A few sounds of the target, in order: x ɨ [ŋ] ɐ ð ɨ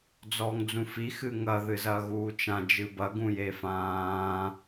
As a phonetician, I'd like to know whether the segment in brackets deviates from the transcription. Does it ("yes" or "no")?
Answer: no